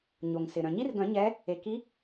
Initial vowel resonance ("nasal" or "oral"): oral